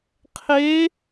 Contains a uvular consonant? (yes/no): yes